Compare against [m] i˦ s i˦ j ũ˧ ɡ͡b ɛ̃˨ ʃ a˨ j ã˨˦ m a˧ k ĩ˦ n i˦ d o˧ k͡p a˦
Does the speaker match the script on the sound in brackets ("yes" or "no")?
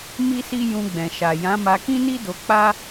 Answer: yes